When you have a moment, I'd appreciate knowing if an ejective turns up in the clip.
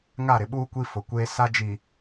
no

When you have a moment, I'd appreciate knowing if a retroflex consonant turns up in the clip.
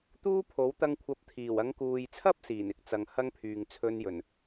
no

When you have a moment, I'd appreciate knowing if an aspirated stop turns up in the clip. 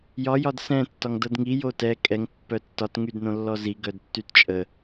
no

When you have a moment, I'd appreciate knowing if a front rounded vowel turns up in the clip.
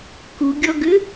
yes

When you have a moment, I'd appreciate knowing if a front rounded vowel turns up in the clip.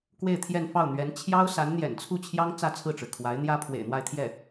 no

